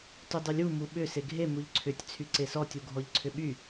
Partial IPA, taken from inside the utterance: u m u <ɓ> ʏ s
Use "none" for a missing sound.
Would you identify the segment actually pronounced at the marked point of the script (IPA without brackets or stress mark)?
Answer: ɓ